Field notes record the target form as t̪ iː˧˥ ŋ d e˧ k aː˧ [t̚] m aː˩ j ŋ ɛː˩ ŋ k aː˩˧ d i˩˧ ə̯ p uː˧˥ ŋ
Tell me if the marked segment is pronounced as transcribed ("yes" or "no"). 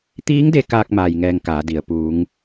no